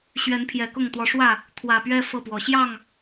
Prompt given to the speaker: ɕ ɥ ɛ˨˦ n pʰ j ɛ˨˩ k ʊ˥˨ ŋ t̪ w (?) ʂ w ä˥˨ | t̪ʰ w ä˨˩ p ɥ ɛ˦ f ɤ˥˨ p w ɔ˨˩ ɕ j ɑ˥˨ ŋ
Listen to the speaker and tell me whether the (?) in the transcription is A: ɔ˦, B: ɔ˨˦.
B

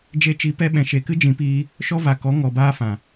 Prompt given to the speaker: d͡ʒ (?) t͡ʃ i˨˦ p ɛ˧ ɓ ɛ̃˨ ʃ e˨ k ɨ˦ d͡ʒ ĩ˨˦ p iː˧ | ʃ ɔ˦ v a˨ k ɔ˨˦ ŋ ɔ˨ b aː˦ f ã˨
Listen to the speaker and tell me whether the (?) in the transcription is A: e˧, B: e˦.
A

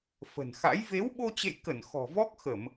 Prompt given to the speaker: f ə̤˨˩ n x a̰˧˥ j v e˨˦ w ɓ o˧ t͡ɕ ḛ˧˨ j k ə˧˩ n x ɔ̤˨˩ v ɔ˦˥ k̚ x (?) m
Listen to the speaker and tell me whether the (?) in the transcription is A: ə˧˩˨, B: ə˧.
A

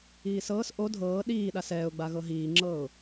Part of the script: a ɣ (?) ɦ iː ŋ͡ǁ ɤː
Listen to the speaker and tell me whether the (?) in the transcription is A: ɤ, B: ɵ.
A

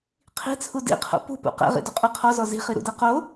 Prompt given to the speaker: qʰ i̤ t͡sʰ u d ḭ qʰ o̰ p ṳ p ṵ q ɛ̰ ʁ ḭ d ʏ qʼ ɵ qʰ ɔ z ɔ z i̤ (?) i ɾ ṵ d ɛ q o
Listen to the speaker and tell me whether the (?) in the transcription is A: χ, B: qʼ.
A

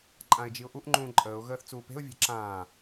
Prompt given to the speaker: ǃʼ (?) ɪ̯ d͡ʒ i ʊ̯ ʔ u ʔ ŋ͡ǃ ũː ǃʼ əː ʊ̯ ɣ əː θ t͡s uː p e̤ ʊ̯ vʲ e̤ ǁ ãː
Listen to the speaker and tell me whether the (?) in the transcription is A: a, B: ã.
B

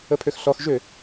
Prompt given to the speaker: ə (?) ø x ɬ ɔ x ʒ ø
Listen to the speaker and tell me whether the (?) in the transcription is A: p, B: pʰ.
B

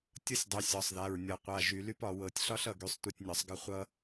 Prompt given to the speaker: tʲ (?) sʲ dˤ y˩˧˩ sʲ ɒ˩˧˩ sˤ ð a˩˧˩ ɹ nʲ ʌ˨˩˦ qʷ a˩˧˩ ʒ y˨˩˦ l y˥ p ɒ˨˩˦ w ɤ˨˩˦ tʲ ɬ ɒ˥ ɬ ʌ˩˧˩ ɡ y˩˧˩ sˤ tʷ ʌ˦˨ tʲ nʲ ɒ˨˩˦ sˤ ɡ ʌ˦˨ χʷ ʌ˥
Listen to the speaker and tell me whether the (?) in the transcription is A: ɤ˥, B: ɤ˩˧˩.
A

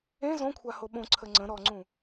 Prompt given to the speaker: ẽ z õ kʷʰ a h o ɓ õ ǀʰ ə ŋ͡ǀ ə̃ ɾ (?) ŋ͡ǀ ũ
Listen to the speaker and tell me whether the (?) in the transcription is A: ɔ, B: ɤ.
A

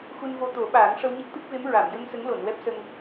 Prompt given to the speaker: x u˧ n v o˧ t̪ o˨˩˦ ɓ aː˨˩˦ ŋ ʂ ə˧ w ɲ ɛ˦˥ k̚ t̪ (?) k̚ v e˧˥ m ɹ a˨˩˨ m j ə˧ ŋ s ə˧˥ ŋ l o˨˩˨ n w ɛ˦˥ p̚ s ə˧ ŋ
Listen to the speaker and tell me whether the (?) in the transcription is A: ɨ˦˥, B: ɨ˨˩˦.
A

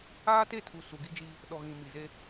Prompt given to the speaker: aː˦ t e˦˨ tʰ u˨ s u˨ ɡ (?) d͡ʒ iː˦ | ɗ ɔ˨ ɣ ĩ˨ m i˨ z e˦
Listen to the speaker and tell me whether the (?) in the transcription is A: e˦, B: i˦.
B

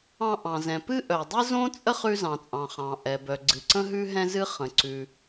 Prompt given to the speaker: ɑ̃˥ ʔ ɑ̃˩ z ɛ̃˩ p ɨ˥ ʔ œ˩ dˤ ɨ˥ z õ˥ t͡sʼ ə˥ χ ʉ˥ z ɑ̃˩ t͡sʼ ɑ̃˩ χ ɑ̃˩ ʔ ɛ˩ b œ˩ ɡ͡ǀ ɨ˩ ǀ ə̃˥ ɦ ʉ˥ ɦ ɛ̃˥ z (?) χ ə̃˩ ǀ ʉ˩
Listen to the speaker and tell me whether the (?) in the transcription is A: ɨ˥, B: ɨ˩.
A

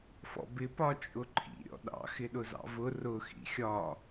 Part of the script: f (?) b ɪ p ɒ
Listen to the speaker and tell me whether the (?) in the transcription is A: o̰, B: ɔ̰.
B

